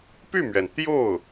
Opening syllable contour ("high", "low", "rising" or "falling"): falling